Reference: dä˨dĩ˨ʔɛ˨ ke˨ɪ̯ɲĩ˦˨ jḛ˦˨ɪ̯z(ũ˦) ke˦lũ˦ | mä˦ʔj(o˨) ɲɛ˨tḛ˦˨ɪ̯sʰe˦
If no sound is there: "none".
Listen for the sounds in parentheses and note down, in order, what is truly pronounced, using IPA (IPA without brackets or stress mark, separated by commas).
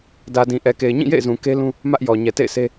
ũ˨, ɔ˨